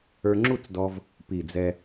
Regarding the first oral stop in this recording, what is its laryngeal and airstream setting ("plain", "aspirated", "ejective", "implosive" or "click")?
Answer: click